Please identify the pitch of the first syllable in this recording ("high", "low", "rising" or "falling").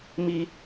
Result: high